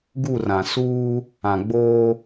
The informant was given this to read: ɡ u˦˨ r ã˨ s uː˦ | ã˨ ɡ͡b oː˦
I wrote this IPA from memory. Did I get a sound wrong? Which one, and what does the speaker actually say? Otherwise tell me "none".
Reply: none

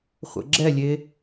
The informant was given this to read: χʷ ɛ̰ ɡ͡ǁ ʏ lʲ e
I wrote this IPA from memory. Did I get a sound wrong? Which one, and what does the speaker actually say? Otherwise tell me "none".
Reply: ʏ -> ɛ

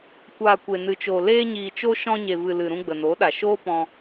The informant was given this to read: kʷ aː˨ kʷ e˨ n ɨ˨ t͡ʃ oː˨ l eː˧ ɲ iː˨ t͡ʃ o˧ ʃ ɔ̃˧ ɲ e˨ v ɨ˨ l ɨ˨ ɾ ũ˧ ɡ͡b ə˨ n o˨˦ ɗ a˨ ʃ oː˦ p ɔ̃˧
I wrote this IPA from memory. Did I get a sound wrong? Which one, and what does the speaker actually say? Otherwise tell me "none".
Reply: none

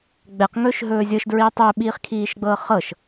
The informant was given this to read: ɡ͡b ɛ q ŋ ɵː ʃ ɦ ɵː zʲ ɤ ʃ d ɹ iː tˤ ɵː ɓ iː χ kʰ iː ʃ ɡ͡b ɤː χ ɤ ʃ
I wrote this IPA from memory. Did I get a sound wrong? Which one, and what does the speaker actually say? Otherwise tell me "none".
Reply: none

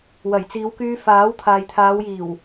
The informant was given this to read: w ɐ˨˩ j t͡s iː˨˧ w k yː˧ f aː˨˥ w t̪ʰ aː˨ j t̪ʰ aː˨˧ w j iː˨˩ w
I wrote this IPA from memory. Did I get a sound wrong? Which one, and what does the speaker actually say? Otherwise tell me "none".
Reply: none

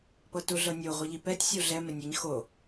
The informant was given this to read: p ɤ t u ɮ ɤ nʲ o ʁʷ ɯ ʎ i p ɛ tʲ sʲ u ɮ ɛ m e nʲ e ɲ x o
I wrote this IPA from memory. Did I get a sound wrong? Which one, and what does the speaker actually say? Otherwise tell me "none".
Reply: none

